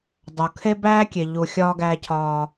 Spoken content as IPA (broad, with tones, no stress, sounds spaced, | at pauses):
dˤ o˨ kʰ e˦ b æː˦ kʲ e˨ ʎ u˨ xʲ ɒː˦ ɡ æː˦ cʰ ɒː˦